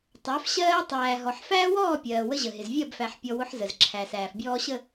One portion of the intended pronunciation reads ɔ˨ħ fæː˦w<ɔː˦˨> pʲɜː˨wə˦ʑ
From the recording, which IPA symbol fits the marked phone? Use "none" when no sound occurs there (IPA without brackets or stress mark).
ɔː˦˨